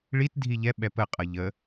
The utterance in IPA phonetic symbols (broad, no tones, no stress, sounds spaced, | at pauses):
ɭ i t dʱ i ʎ ɛ ɓ ɛ p ə qʼ ʌ ʎ ə